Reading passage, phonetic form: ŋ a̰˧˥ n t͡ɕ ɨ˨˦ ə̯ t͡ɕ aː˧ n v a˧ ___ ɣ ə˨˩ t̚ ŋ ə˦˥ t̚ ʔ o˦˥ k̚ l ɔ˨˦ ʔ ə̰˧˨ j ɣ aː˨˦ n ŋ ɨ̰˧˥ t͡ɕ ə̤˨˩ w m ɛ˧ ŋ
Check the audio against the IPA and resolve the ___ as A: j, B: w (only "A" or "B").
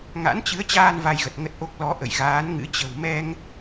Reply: A